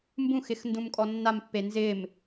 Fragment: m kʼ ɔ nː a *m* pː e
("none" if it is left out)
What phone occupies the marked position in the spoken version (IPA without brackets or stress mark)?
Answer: m